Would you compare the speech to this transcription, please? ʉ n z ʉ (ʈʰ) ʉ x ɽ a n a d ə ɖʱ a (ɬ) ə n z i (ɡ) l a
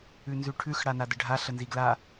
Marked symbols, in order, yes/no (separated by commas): yes, yes, yes